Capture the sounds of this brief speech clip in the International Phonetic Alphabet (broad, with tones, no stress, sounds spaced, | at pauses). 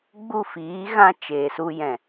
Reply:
ɡ͡b u˦˨ f iː˨˦ ɣ ã˧ t͡ʃ eː˨ s u˧ j ɛ̃˨